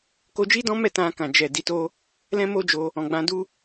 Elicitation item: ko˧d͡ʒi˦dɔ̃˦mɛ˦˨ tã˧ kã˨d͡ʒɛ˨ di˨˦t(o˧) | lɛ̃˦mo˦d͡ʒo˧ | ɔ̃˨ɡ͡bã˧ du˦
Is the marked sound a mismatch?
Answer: yes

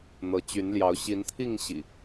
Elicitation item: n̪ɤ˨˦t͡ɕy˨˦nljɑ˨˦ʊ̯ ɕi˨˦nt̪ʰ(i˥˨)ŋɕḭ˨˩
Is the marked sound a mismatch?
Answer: no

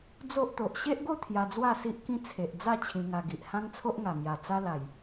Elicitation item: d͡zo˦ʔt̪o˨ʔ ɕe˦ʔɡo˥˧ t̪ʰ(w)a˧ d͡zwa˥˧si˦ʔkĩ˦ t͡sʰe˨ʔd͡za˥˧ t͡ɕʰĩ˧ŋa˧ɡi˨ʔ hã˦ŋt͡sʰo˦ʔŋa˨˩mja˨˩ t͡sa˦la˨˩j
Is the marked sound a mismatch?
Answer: yes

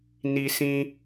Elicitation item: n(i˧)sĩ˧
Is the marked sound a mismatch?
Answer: no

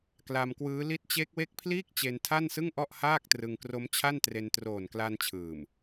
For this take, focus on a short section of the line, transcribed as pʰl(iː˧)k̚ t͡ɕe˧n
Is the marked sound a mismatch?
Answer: yes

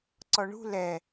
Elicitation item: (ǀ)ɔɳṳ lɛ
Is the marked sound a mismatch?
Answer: no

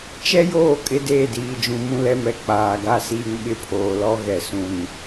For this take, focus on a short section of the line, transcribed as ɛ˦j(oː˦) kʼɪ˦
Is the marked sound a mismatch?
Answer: yes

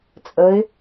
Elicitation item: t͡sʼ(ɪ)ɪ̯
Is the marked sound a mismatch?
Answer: yes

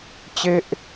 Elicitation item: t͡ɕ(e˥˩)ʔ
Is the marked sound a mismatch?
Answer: no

